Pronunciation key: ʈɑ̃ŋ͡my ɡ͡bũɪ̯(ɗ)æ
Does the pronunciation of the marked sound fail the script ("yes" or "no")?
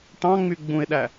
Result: no